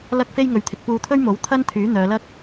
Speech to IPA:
l ɐ˥ k̚ f e˥ j ŋ ɵ˨˥ ɥ t̪ʰ ɪ˨ k̚ p uː˧ t̪ʰ ɵ˥ ɥ m o˨˥ w t̪ʰ ɐ˥ n t̪ʰ yː˨˥ n̪ œː˨˧ l ɐ˥ k̚

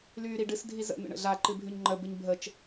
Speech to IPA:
l yː ɾ i ɖ ɨ s dʱ i z ə̰ n̪ ə̰ ɳ ə̰ ɮ a ǃ ɨ bʱ y ɲ ŋ͡ǃ ə b ɨ ɲ bʱ ə t͡ʃ

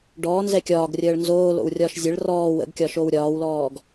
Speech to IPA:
ɖ ɔː n z ɛ kʲ ɒː ɡ rʲ əː ɭ n z oː l o̰ w rʲ ɒː ʃ zʲ ə ɭ r ɔː w ə̰ ɡ kʲ ɒ ʃ o w ɾʲ ɒː w l ɔː ɡ

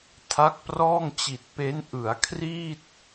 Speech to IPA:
tʰ a˦˥ k̚ p r ɔː˥˩ ŋ t͡ɕ i˨˩ t̚ p e˦˥ n ʔ ɯ˩˦ a̯ kʰ r iː˥˩ t̚

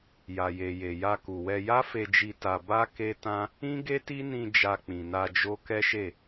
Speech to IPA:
j a˨ j e˨ j e˨ j a˧ k u˨ w ɛ˧ j a˦ f e˧ d͡ʒ i˧ t a˧ b a˦ k e˦ t ã˦ | ĩ˦ ɡ e˦ t i˦ n ĩ˧ d͡ʒ a˧ k͡p ĩ˨ n a˧ d͡ʒ o˦ k ɛ˦ ʃ e˦˨

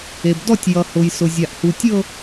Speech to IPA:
e˩ b d ɔ˥˧ tʲ j ʌ˩ h ʊ˩ j s ʊ˩ zʲ a˩ ʔ h u˩ tʲ ɤ˥˧

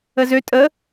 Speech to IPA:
ə z ø tʼ ə

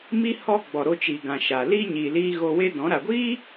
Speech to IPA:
m i˦ h ɔ˧ ɡ͡b ɔ˨ ɾ o˧ t͡ʃ iː˨ ɡ ã˨ ʃ a˨ l i˦ ɲ i˨ l iː˧ ɣ o˧ w e˦ d ɔ̃˨˦ ɾ a˨ ɡʷ iː˦

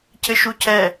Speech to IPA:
cʰ ɘ ʃ u cʰ ɛ

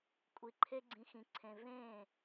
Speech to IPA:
kʷʼ i˧ ǃʰ e˦ ɡ͡ǀ ĩ˧ x ĩ˧ ǀʰ ẽ˧ v ẽː˦˨

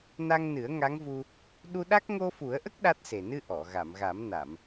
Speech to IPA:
n a˧ ŋ n ɨ˨˩˦ ə̯ ŋ a˧˥ ŋ v u˧ | ɗ u˧ ɗ a˦˥ k̚ ŋ o˧ f u˨˩˦ ə̯ ʔ ə˦˥ k̚ ɗ a˦˥ t̚ s e˨˩ n ɨ˧ ʔ ɔ˨˩˨ ɣ a˨˩˨ m ɣ a˨˩˦ m n a˨˩˨ m

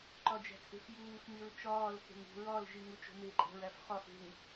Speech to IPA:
ǃ ɒ d͡ʒ æ̤ t͡sʼ e̤ f j uː x m i ɹ t͡ʃ ɒː l x e̤ ŋ ṳ ɹ ɒ l ʒ i ŋ u t͡ʃ o̤ m e ǃʼ æ̤ ɹ æ f χ ɒ f e̤ ŋ

